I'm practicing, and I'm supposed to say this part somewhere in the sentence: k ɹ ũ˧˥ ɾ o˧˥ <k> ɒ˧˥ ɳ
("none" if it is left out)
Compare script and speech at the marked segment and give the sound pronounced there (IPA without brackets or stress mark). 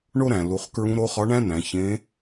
χ